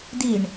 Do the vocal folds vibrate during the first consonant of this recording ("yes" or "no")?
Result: yes